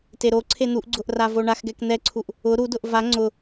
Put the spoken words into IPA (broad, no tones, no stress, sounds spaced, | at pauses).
t e ɾ o ǀʰ e n̪ u ʔ ɡ͡ǀ ʊ ʔ r a v o ɳ a x ɡ ɛ k n̪ ɛ ǀʰ u ʔ | ʊ ɾ u d ʊ ʔ v a ŋ͡ǀ ʊ